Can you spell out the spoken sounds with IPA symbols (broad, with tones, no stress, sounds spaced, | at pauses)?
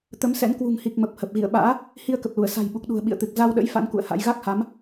t̪ ə˨˦ m s ɛ̰˧˥ n k w ṳ˨˩ ŋ h i˨˩ k̚ m ə˨˩ p̚ h ə˨˩ p̚ ɣ ḭ˧˨ ə̯ ɓ a̰ː˧˥ | h i˧ ə̯ k ə˨˩ p̚ l u˧˩ ə̯ s a̤˨˩ j ɓ u˨˩ k̚ ɗ ṳ˨˩ ə̯ ɓ ḭ˧˨ ə̯ t̪ ɨ˨˩ k̚ z a˧ w ɗ ə̰˧˥ j f a̰˧˥ n k ṵ˧˨ ə̯ h a̰˧˥ j ɣ a˦˥ k̚ h a˨˦ m